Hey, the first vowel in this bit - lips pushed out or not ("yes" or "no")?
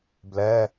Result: no